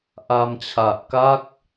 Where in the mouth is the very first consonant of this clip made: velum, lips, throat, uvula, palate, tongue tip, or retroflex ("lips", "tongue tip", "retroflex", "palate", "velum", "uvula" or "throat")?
throat